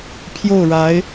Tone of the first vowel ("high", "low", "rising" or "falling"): falling